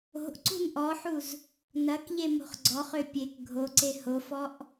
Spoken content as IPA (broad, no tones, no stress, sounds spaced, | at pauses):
o̤ ʔ ǀ ṳ n ʔ ɔ ħ u z | n ɐ k ʎ e m o̤ χ ɡ͡ǀ ɔ χ ø pʲ e k ɡʱ o ǀ e h o f ɔ ʔ